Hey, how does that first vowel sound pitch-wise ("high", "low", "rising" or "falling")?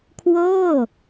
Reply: falling